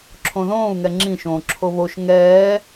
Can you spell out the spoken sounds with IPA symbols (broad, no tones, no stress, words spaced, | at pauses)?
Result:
ǁʰõðõːu̯ ŋɛŋ͡ǁĩ ʃõːǁʰoβoʃ ŋɛː